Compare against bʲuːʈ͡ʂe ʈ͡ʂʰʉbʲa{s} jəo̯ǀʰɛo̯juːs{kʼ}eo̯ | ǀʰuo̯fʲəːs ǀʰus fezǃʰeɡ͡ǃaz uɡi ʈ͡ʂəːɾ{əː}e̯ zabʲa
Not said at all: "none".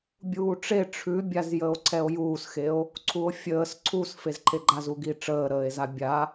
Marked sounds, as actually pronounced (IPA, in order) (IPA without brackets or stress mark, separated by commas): z, x, əː